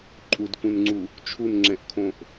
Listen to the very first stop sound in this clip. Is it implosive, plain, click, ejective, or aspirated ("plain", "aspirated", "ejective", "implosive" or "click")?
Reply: click